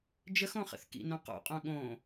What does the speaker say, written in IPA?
d͡ʒəxõχə̰θ kḭnõ qo̰qʼõ ɠõ

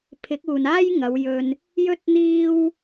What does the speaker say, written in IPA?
pʰɪ˨˥k̚uː˨naː˥j ŋɐ˨˧wjɵ˧n | jɵ˥t̚n̪iː˥w

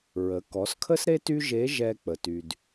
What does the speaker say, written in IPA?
ɹə˩˧kɔ˩˧skʰə˥sɾe˥ ty˥ʒe˧˥ʒɛ˧ k͡pə˩ty˩d

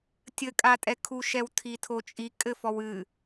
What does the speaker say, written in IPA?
tʲɘkʼatʼɛkʰu ʃɛwtʰitʰot͡ʃʼi kʼɘfɔwɨ

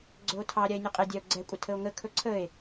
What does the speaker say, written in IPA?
ɡ͡ǀɵo̯tʰɑ ɾʲae̯nʲʊqʼedʲao̯ ɡ͡ǀɛkʷʼə tʰəo̯ŋə kʰɵǀʰəe̯

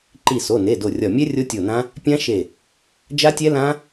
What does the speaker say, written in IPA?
ǃi˧˩so˩˧˩ne˩˧˩ do˧˩rʲɒ˧˩ mʲɛ˦˥ rʲo˦˥tʲo˧˩nã˦˥ | pʲã˦˥ʃe˧˩ | d͡ʒa˦˥tʲɛ˦˥lã˦˥

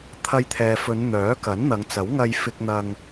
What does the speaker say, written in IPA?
t̪ʰɐ˧jt̪ʰɛː˨fɵ˨˧n n̪œː˨˥kɐ˨˥nn̪ɐ˨˧ŋt͡sɐ˨˥w ŋɐ˧jfɪ˧k̚n̪ɐ˧ŋ

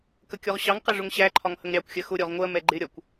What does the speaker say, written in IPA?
kəkʲɔʁɕɑŋqɛ ʐʊŋɕæǃʰɒŋ həŋɾʲɑkʷxʲɜ xʊɾʲɔʁ ŋʷɜmɛ ɡ͡ǃɪɾʲɒkʷ

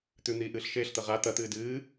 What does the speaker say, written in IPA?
t̪ʉn̪iːʔɨːɬ ʃeːɬt̪ɐ ʁa t̪ɐt̪ɨː dɨː

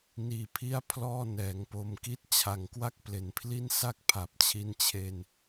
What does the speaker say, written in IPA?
niː˧pʰi˥˩a̯ pʰlɔː˥˩nɛː˩˦ŋpo˧m ki˦˥t̚t͡ɕʰa˨˩ŋkwa˦˥k̚ ple˩˦npʰli˥˩nsa˥˩k̚ pʰa˨˩p̚t͡ɕʰi˦˥n t͡ɕʰe˧n

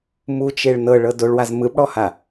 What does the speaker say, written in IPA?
mut͡ʃeɭ nɤɭɤ doɭwaz mɯbɽɔha

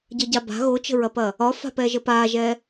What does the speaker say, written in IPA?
ɟəɟaba̤ ɣot͡ʃə̤ɹɐpɐ | ɒfa̤pɛʒə paʒɛ

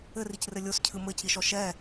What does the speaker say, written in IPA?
ɘricrɘ lʲoscʰɨ mɘciʃɔ ʃɛ

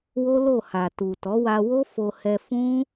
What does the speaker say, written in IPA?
wo˦lo˦˨ha˨ tu˨tɔ˨˦wa˧wo˦ fo˧hɛ˧fũ˦

